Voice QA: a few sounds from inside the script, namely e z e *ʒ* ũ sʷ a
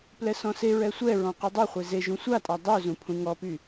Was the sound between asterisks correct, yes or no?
yes